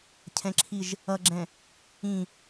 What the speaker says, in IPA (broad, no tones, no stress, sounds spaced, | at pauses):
cʰ ɛ̃ ǁʰ i ʒ | ʌ ɡ͡ǁ ɛ̃ | ĩ